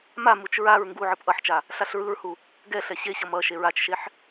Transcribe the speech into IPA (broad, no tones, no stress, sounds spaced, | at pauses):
m a m u t͡ʃ ɹ a ɹ ŋ ɡ u ʕ ɯ p ʔ ʌ ħ t͡ʃ a | ɬ a ɬ ɹ ɯ ɹ h u | ɡ ɛ ɬ ɛ ɕ e ɕ ʌ m ʌ ʃ e ɹ a t͡ʃ ʃ e ħ